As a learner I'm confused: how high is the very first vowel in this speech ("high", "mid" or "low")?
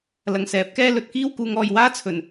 low